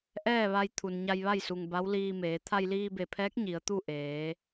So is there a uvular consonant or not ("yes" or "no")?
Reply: no